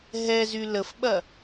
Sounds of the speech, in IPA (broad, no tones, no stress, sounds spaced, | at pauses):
ɦ ɛ z y l ə f ɓ ɐ